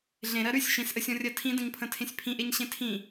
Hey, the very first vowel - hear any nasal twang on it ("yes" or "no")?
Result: yes